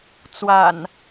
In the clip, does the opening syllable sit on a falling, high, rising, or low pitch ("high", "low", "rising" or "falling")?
low